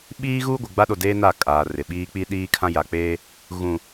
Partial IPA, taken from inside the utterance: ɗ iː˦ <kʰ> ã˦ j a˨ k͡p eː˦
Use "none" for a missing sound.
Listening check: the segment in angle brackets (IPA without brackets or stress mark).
kʰ